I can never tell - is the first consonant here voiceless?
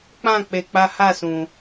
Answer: yes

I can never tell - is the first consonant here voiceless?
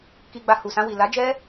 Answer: yes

